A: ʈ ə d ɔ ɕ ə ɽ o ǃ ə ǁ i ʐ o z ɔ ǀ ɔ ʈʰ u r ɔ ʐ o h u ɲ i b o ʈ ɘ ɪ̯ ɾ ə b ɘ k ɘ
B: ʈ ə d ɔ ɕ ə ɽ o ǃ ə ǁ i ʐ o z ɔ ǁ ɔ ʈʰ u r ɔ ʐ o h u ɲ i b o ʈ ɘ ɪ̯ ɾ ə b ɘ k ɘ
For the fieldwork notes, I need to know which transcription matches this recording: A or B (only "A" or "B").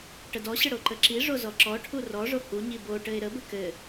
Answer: B